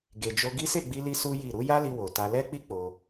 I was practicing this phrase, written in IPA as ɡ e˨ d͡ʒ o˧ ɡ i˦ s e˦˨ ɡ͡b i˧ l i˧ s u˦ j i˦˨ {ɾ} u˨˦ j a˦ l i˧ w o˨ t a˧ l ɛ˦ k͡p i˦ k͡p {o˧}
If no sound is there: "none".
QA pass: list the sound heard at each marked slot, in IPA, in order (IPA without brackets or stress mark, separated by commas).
ɾ, o˧